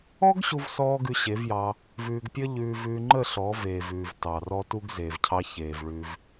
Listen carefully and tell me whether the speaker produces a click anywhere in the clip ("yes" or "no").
yes